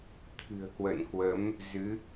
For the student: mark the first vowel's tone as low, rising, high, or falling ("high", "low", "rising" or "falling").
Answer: low